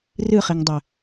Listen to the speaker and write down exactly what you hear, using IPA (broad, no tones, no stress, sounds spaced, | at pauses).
r ɨ χ i ŋ dˤ ɘ